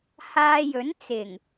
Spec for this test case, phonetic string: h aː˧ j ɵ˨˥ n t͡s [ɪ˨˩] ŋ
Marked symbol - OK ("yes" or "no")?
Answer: yes